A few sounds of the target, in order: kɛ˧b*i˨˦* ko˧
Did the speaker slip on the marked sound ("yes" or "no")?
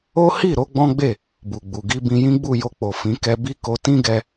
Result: yes